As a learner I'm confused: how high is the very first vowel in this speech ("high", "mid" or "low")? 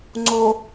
mid